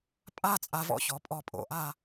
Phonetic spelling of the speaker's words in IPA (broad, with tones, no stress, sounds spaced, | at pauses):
pʼ a˥˧ t͡sʼ a˧ v ɔ̰˧ ç ɔ˩˥ pʼ ɔ˧ pʼ o̰˧˩˧ ʔ a˥˧